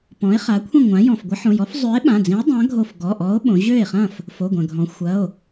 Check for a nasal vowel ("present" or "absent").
present